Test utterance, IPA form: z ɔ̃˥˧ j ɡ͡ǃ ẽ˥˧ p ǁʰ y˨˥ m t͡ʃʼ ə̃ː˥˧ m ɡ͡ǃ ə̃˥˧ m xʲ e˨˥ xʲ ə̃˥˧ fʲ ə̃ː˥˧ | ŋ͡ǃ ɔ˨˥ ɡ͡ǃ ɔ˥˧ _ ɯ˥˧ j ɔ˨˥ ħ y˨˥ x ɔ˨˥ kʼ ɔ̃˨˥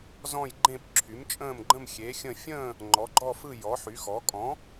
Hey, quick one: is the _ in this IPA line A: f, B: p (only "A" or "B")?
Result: A